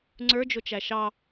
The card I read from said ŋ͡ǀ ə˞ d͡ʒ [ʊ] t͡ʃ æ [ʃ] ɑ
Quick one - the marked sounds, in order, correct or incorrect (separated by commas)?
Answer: correct, correct